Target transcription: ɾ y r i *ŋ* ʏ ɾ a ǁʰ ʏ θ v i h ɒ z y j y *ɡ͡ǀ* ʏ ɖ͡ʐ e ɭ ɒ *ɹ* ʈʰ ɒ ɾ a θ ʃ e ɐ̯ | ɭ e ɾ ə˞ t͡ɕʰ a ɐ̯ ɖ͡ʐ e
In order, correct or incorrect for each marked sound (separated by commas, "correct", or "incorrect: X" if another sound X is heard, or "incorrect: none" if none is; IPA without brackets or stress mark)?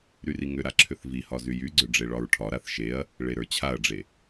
correct, correct, correct